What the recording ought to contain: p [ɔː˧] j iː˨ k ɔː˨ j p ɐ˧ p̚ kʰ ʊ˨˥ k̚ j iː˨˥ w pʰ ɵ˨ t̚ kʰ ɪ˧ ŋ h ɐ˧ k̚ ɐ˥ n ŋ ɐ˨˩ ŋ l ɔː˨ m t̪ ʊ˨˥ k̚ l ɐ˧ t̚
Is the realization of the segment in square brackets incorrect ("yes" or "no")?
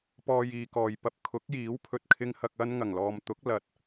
no